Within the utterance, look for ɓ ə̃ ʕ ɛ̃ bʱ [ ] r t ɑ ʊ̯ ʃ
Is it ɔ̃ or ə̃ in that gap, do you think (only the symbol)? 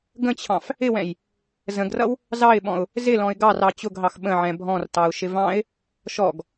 ɔ̃